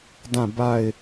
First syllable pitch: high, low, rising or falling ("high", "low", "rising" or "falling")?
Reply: falling